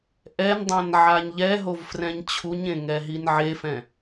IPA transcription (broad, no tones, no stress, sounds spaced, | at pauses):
ʔ ɛ n dˤ ã n ʕ a ɲ ʎ ɛ ɦ o v f r ɛ̃ ɲ t͡ɕʰ u ɲ ẽ ŋ ɛ ɦ i n ʕ e f ɛ̃